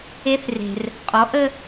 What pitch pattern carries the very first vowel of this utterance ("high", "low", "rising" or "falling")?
high